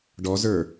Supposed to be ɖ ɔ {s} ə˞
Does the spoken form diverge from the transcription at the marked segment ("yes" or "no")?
yes